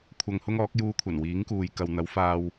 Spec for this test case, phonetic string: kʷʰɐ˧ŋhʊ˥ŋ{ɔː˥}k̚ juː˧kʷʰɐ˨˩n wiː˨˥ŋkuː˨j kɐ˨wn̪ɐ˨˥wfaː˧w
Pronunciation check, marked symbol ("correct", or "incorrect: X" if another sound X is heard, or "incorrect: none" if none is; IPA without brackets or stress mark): incorrect: ɔː˨˥